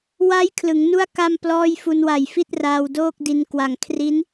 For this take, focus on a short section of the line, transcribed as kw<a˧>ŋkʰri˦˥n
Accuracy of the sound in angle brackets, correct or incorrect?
incorrect